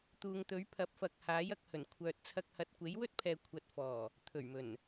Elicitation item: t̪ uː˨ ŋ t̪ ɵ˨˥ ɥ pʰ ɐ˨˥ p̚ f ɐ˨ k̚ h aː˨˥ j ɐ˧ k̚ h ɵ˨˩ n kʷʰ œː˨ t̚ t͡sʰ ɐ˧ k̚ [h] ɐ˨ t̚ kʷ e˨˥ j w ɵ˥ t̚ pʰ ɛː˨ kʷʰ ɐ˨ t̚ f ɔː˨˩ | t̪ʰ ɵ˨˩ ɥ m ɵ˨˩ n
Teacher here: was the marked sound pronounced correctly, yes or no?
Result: yes